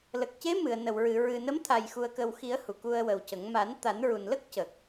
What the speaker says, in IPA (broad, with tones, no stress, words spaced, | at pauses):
lə˨˩k̚ce˧˥ mɨ˨˩˨ə̯nə˨˩˨wɹɨ˨˩˨ ɹɨ˨˩nə˧˥mt̪ʰa˨˩j xu˨˩ə̯kə˨˩wxi˨˩˦ə̯ hu˨˩˨ku˧ə̯wə˨˩wcə˨˩˦ŋ ma˨˩˦n t̪a˨˩˦nɹu˨˩n lə˦˥k̚ cə˨˩k̚